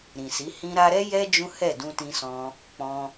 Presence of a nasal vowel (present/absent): present